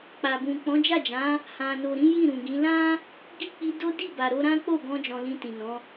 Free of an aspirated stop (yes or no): yes